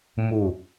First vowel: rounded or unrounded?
rounded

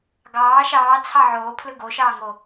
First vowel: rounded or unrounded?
unrounded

